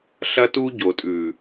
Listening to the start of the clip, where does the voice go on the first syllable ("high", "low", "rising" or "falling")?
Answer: high